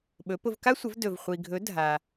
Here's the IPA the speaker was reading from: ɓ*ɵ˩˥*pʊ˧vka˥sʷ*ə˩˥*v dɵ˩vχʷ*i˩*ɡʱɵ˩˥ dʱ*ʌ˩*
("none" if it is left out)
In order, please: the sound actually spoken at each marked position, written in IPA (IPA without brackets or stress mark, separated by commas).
ɵ˩˥, ə˩˥, i˩, a˩